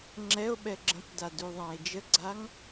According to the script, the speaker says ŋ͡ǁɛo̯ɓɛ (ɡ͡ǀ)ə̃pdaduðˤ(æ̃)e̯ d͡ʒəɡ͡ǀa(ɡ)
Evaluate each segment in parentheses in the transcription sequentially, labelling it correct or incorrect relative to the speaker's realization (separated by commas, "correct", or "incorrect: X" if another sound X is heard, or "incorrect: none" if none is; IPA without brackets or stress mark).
incorrect: ɡ͡ǁ, correct, incorrect: ŋ